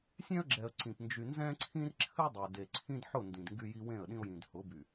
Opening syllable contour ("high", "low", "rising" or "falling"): high